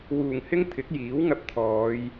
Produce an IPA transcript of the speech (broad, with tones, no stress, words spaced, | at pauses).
wuː˨˩ŋhɪ˥ŋ t̪ʰɪ˨˥k̚jiː˨˥wŋɐ˧p̚ t̪ʰɔː˨˧j